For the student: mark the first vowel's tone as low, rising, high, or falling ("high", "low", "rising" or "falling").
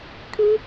high